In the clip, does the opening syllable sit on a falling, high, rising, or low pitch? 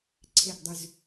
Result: falling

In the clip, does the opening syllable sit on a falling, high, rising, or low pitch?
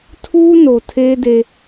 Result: high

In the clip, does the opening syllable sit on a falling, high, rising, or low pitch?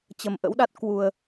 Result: low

